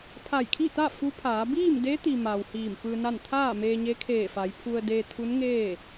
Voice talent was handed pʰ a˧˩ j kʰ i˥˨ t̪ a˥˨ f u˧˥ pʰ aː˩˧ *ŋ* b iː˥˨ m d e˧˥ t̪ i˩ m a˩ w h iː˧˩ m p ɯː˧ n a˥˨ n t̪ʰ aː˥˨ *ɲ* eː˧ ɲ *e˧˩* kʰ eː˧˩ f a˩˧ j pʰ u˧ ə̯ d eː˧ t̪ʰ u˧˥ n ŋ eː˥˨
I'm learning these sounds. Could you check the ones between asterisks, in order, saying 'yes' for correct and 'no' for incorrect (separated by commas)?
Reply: no, no, no